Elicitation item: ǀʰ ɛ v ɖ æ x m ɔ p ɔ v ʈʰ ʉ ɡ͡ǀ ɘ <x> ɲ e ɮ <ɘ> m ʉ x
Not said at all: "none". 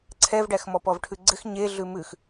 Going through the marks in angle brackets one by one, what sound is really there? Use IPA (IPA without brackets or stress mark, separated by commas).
x, ʉ